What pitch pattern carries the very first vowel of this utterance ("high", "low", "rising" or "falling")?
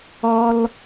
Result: high